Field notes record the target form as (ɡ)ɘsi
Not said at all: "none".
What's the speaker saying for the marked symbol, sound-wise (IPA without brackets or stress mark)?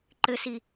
ǃ